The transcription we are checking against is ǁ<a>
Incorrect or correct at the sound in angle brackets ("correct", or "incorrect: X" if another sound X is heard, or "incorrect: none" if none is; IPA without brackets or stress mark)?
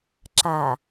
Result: correct